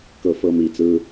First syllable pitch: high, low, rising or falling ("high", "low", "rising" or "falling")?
falling